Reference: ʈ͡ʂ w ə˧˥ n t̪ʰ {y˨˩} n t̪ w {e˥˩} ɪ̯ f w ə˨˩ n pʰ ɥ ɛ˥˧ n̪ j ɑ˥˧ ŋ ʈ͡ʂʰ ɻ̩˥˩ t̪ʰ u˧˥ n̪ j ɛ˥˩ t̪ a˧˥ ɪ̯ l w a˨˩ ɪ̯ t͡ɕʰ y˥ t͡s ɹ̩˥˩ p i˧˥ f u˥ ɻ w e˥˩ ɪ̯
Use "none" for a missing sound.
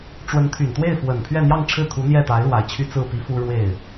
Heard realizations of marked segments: y˨˩, e˥˩

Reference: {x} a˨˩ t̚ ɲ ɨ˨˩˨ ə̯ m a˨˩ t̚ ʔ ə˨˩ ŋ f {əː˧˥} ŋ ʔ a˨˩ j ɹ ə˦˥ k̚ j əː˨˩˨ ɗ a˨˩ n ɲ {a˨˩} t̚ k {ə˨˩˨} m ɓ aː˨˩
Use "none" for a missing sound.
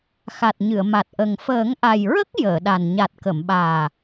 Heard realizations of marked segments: x, əː˨˩˦, a˨˩, ə˨˩˨

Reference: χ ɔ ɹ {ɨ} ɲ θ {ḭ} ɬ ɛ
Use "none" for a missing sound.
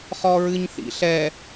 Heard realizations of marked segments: ɨ, ḭ

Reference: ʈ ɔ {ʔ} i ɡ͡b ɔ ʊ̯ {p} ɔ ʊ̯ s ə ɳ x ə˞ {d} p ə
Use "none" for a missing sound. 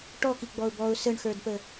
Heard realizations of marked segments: k, b, d

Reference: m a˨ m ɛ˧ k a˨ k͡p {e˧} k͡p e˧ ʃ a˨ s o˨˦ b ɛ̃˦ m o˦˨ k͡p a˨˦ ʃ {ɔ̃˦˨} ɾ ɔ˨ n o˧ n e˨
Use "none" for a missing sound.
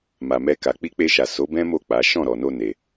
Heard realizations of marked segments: i˧, ɔ̃˦˨

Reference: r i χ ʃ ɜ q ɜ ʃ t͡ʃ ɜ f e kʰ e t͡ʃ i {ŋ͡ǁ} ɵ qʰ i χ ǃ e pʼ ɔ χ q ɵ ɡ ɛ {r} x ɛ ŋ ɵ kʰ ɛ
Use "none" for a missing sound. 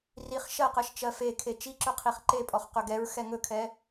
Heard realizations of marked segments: ǁ, ɹ

